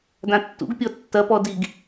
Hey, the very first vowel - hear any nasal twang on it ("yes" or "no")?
yes